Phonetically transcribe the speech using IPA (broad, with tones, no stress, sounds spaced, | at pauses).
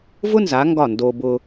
v ʊ˥ n z a˩˧ ŋ ɡ ɒ˧˩ n d o˧ b ʊ˧